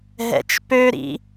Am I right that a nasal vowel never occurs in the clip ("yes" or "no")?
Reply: yes